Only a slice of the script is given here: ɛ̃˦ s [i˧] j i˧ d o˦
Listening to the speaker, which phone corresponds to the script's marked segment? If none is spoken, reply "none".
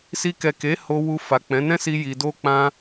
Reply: i˧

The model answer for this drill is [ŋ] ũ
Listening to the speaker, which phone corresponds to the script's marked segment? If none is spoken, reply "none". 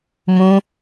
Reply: m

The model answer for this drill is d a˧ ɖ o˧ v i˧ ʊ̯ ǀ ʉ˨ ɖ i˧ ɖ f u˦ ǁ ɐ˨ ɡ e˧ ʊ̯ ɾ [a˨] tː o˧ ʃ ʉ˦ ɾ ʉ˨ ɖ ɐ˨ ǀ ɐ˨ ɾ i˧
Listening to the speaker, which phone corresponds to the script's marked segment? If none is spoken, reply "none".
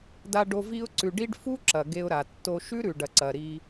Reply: a˨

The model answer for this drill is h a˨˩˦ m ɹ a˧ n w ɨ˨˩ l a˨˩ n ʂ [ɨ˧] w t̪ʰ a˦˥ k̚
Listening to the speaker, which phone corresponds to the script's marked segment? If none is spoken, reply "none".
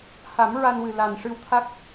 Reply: ɨ˧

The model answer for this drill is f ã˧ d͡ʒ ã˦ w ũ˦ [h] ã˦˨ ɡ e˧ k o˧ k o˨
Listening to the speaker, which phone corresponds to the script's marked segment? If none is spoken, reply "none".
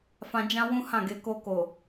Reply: h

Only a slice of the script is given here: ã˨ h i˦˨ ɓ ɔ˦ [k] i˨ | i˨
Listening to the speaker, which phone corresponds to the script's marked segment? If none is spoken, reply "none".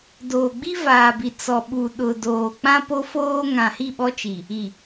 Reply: t͡ʃ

